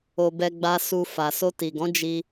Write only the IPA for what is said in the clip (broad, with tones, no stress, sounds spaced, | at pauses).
o˧ b ɛ˧ ɡ͡b a˧ s u˧ f a˨ s o˧ t i˨ ɡ ɔ̃˨˦ d͡ʒ i˧